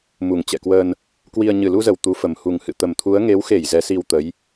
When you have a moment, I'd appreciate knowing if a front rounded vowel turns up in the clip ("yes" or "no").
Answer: no